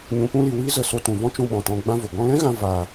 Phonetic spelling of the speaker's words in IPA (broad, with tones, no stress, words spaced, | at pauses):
ɲũ˨pũ˧li˨ wiː˦zə˧ so˧tũ˨vɔ̃˦ t͡ʃũ˧ɓɔ̃˨tɔ̃˧ ɡ͡bã˧ vo˨ ɡɔ̃˧lɛ̃˦ɣã˧ vaː˧